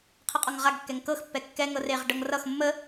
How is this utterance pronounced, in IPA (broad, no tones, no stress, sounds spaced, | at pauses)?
qʰ ə qʼ ɒ ŋ ʁ a ɡ kː ɛ ŋ k ɤ x pː ɛ kː ɛ ŋ ɤ r e ʁ ɖ ɤ ŋ r ʌ x mː ə